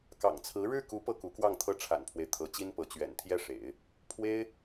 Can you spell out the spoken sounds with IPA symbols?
k ɑ̰˨˩ ŋ t͡sʰ ɹ̩˧˥ ɻ ɻ̩˥˩ k u˧˥ p ɤ˥˩ k u˧˥ k w ɑ˥˩ ŋ t̪ʰ ɤ˥ ʈ͡ʂʰ a̰˨˩ n pʰ w e˦ ɪ̯ t̪ʰ ɤ˧˥ t͡ɕ i˥ n p ɤ˧˥ t͡ɕ ɥ ɛ̰˨˩ n t̪ʰ j ɛ˥˩ ʂ ḛ˨˩˦ ɪ̯ | pʰ w e˥ ɪ̯

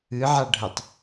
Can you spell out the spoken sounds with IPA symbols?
ɨ ʕ a ɖʱ ə tˤ

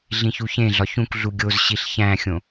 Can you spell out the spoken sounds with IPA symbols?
ɮ ĩ ç u ç ẽ ɮ ɒ ç ũ k ɮ u ɡʲ o z ɕ i ɬ ç æ̃ xʲ õ

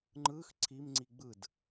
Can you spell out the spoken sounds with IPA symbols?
ŋ͡ǃ ɯ x ǀʰ i m ŋ͡ǀ i ɡ͡b ɯ d

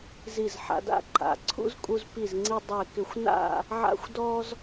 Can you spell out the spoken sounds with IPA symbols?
z i˧˩ z ħ a̰˧ d a̰˥ ǃ a̰˩˧ ǀʰ ṵ˥ z kʼ u˧ z p i˧˩ z ŋ͡ǀ i˧ dˤ e˧˩ k ɪ˧˩ xʷ n a̰˥˧ | ʕ a̰˥ xʷ d ɔ˥ z

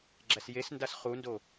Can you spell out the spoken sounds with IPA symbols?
ɡ͡ǁ æ s j e s n d a s χ u n d o

